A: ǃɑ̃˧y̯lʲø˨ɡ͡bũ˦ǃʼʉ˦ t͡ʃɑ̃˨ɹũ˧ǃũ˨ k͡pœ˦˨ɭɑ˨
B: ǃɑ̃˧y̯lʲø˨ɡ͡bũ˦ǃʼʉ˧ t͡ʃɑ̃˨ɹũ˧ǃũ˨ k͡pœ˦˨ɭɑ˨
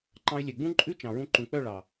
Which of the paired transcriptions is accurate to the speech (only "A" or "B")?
A